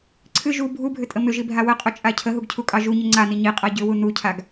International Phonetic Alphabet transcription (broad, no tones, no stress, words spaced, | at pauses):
ǀʰɨ ʒu bʱubʱʏtʼə mʏʒibʱa wəqʼʊt͡ʃʼa cʰəɦuɡcʰukʼɑ ʒuɲə ŋ͡ǀani ɲiqʼa ɟʏwu nucʰaɡ